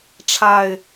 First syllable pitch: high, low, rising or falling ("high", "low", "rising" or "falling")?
low